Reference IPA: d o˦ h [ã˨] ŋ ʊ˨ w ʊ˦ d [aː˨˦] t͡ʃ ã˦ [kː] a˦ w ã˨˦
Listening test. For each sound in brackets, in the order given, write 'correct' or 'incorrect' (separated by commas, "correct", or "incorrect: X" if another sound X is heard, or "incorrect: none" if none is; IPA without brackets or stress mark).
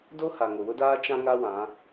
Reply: incorrect: a˨, incorrect: aː˦, incorrect: ŋ